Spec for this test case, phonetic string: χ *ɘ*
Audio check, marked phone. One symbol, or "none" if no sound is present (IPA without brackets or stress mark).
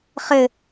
ɘ